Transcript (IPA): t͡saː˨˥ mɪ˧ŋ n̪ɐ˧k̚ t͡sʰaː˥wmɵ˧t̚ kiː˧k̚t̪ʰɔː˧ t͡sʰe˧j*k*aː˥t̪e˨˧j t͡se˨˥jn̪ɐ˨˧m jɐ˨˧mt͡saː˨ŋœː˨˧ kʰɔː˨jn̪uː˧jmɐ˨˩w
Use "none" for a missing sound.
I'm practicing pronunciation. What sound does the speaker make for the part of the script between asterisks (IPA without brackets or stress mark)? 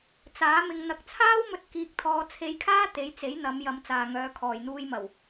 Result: kʰ